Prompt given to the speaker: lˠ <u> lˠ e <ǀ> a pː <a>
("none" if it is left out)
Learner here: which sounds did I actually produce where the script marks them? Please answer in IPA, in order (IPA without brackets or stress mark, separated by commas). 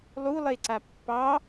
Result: u, ǀ, ɑ